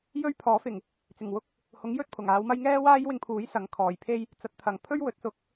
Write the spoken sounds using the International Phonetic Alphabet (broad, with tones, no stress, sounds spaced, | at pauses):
j ɵ˥ ɥ pʰ ɔː˨˥ f ɪ˨˩ ŋ | t͡s ɪ˨˩ ŋ w ʊ˥ k̚ | h ʊ˨˥ ŋ j ɵ˥ t̚ pʰ ʊ˨˩ ŋ aː˨˧ w m ɐ˥ j ŋ ɛː˥ w aː˥ j w ɪ˧ ŋ pʰ uː˨˥ j s ɐ˨˥ ŋ kʰ ɔː˨˩ j pʰ e˥ j | t͡s ɐ˨˥ t̚ t̪ʰ ɐ˨˩ ŋ pʰ ɵ˥ ɥ w ɵ˨˥ t̚ s ʊ˨˥ k̚